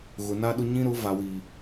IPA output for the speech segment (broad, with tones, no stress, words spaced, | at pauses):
ɣʊ˨na˦ɗʊ˦ ɲĩ˦ɾʊ˨˦ va˨wi˨